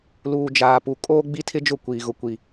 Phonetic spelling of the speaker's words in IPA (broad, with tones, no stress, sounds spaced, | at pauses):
l uː˨ d͡ʒ aː˨ p u˨ kʼ oː˦ ɡ͡b i˦ tʰ ɪ˦ d͡ʒ ʊ˦˨ kʷ iː˨ ɣ ʊ˨ kʷ i˨